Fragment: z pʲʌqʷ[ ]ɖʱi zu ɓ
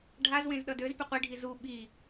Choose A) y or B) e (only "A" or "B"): B